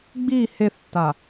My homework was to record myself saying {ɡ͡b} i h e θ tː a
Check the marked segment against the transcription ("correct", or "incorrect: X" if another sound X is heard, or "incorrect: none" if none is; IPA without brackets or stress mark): correct